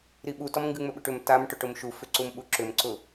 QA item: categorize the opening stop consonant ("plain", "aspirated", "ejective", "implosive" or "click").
implosive